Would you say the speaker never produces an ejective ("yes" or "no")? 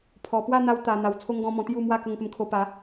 yes